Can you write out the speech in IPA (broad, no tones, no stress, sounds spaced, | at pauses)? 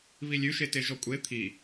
β i lʲ ʉ ʃ e t e ʒ ɔ kʷʼ e t̪ʰ i